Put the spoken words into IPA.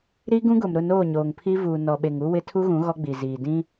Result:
ɾ i˦ ɡ ũ˦ ɡ ʊ˨ m ɾ ʊ˦˨ n oː˦˨ ɲ oː˨ ŋ pʰ i˦ v uː˨ n ɔ˨ ɓ e˨ ŋ u˦ w ɪ˦ tʰ u˦ ɣ ũ˨˦ ɣ ɔ˦ ɡ͡b i˨ z iː˨ d ĩ˦

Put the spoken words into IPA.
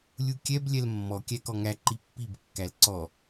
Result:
lʲ u kʲ ɛ b lʲ ɛ l mː ɔ kʲ æ k ɔ ŋ æ ǃ i pː i b kː æ l ǀ ɔ

